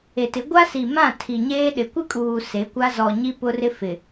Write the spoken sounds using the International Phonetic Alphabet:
e˨tɪ˨˦ ɡʷa˦si˨mã˦˨ tʰi˨ɲeː˦ɗɪ˨ kʷɪ˦kʼuː˨ se˨˦kʷa˦ zɔ˨ɲi˦ pʊ˦rɪ˦fɪ˨

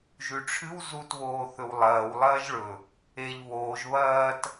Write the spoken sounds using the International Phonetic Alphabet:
ʒʉʈ͡ʂʰɨw zut βoːθɵwlˠɐːw lˠɐːʒɭɵ | eʎ βoːʒ βɐːt

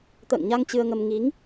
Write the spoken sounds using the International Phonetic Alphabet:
t̪ə̰ː˧˨ŋɲa˧ŋ t͡ɕɨ˧ə̯ŋə˧m ŋi˨˦ŋ

